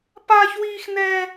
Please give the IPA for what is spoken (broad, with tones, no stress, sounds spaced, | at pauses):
p aː˦ ç w iː˦ x n ɛː˦